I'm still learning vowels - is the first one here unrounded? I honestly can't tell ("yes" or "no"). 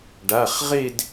yes